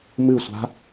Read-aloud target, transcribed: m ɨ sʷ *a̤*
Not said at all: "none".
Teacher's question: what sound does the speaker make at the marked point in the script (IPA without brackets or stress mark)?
a̤